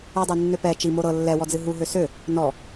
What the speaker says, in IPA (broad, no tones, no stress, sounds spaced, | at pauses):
ɨ dˤ ø nː ø p ɛ t͡ʃ i m o ɾ ɤ lː ɛ w ɔ d͡z ɨ ɦ u ɦ ø s ø | n ɔ